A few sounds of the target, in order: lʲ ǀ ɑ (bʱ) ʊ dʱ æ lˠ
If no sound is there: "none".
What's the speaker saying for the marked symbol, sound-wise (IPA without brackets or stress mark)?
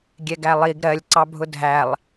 bʱ